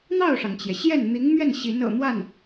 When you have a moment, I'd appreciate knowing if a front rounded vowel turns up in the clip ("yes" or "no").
no